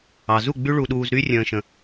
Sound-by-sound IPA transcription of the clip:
ɑ˨ zu˦˨ ɡ͡by˦ɭu˧ɗuː˧zɾy˦ rʲə̃ː˧ʃə̃˧

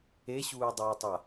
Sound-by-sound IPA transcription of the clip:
eɕuːdˤuːtˤa

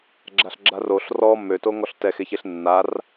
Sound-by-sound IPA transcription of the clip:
ɡ͡ǁaɬɡ͡ǁaroɬ rɔ møto ŋɔɬtɛxeçeɬ nːar

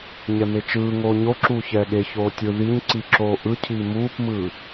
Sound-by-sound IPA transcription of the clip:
ɲɛmet͡ʃɯːŋoː ɲoǁuː çɛːɠeçoː tʲɯ ðiɲ ǀiǁoːʔɯcʰiː muːpmɯː

